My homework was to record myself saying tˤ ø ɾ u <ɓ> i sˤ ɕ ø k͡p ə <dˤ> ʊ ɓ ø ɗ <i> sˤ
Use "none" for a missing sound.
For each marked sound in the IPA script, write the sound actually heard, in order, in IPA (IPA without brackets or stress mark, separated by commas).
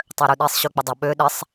ɗ, dˤ, ɪ